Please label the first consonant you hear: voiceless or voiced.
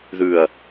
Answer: voiced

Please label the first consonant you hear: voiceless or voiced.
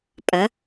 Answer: voiceless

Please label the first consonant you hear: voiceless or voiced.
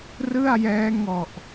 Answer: voiced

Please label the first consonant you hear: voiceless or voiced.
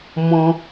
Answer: voiced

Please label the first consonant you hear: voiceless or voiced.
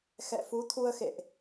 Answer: voiceless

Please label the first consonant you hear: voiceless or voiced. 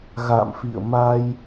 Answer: voiced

